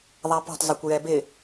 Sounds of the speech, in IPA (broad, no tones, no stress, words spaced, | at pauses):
ðˤapɔ̤tˤzˤɛkʷ jɛbɪ